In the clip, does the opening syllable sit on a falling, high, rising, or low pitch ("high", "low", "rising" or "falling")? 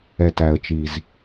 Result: low